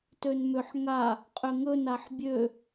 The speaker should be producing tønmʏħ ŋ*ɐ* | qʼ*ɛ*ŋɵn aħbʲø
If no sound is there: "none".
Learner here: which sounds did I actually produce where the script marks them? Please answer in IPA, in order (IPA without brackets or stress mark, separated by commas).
a, ʏ